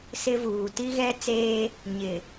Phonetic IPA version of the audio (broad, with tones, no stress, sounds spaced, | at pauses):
s ɪ˦ v uː˨ t i˦ ɣ ɛ˦ t͡s eː˦ | ɲ ɪ˨